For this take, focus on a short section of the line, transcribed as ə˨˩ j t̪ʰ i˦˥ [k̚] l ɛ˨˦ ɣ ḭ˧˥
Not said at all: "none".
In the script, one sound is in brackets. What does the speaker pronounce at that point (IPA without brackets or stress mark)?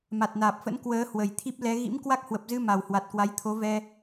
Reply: p̚